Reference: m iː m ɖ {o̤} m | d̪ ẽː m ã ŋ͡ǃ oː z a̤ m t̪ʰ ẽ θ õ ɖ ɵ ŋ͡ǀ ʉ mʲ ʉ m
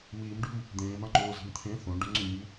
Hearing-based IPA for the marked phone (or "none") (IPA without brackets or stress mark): ṳ